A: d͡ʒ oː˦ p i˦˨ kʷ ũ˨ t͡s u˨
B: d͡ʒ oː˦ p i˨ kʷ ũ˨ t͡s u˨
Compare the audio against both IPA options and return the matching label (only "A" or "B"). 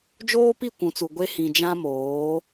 A